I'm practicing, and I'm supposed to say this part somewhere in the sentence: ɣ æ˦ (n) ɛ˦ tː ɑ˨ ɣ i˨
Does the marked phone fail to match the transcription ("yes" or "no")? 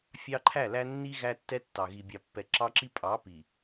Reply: yes